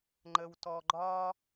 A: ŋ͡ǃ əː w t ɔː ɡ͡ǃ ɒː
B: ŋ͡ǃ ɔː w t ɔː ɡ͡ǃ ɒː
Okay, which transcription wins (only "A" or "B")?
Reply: A